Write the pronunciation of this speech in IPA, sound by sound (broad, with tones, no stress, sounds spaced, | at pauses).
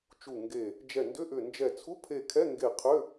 t͡ʃ u˧˩ ŋ ɡ e˧˩ | d͡ʒ ɛ˧˩ n d ʏ˧˥˧ ʔ ʏ˧˩ n d͡ʒ ɛ˧˩ t͡sʰ u˧˥˧ pʰ e˧˩ kʰ ɛ˧˥˧ ŋ ɡ e˧˩ qʰ ʏ˧˥˧